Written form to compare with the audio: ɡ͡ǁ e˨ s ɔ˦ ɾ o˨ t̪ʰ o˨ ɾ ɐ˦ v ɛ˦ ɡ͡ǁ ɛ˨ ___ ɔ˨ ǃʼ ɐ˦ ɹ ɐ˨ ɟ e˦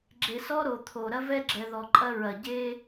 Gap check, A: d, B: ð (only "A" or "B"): B